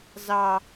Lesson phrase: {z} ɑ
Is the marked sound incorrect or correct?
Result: correct